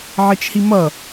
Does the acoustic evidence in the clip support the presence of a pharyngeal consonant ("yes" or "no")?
yes